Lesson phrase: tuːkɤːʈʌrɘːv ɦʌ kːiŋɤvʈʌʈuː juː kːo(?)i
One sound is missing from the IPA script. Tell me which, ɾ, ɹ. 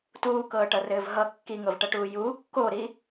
ɾ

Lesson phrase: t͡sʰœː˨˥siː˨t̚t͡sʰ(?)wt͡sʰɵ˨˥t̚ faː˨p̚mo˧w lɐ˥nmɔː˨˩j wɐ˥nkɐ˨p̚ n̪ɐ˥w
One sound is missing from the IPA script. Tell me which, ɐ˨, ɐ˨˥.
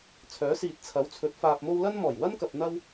ɐ˨˥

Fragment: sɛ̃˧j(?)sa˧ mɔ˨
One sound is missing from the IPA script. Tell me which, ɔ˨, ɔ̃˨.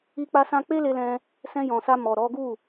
ɔ̃˨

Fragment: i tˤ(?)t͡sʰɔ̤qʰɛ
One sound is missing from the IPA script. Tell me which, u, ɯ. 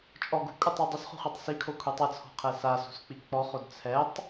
ɯ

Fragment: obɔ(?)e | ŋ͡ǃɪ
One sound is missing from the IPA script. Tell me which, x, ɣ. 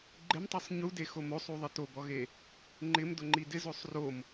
ɣ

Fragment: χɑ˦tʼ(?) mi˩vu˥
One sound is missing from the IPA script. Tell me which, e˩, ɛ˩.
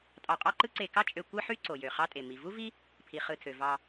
e˩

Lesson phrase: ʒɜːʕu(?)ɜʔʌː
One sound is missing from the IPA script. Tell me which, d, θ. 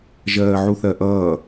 θ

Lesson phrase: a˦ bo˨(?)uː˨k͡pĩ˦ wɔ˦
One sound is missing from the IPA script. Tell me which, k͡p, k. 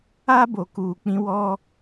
k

